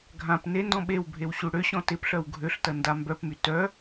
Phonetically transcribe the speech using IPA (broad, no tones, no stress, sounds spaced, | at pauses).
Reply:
ɡʱ ã p n e n d ɔ̃ ɓ e w bʱ e w ɕ u ɽ ø ɕ ɔ̃ t ɪ p ɬ œ w ɡʱ ø ɬ t ɐ n d a m b œ p m y t œ